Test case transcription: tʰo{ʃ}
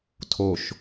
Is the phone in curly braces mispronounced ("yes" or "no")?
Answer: no